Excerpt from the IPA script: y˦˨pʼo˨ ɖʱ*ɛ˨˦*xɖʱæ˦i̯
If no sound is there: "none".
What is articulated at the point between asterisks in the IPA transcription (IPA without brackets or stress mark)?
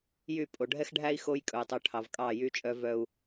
ɛ˦